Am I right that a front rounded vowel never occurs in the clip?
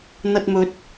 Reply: yes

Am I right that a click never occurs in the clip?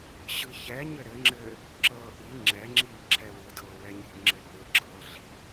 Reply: no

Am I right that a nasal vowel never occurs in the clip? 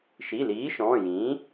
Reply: no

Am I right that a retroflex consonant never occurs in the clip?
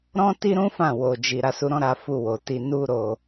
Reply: yes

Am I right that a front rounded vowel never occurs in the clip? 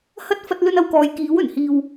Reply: yes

